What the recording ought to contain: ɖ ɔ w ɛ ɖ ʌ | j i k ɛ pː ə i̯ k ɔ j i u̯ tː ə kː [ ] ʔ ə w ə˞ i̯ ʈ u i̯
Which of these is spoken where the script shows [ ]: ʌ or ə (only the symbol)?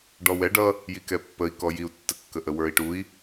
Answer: ə